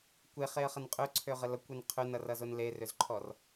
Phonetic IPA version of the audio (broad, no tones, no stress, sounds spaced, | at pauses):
kʷ e χ e ə̯ χ ə n qʼ ø ǀʰ ø ʁ ə l ʌ kʷ e n qʰ ø n ʌ r ʌ z o n l e r ø z ǃʰ ɔ r